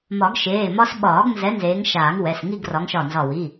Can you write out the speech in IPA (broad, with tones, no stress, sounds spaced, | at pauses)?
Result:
m ɒ˨˩˦ ɡ ʃ eː˩˧˩ m ɒ˥ s ɓ ɒː˨˩˦ ɡ n z ɛ˨˦ n z eː˨˦ ŋ ʃ aː˨˩˦ ŋ w ɛ˩˧˩ s ŋ i˥˧ ɡ r ɒ˨˦ ŋ ʃ ɒ˧˩ n z ɒ˧˩ w i˩˧˩